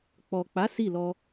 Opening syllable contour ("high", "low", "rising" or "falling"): low